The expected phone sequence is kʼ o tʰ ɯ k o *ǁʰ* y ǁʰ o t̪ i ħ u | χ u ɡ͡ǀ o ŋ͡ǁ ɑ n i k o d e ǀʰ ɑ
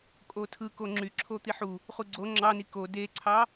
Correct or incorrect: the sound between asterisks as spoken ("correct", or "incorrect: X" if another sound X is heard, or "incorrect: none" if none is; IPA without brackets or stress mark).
incorrect: ŋ͡ǁ